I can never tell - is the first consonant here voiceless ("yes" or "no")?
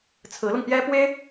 yes